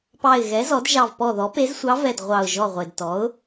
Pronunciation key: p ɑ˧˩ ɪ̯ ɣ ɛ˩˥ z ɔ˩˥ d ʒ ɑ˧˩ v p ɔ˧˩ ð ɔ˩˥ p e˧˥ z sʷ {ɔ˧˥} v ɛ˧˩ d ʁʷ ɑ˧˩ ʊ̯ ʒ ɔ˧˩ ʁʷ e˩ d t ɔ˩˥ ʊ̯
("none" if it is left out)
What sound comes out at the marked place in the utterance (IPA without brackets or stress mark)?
ɑ˧˥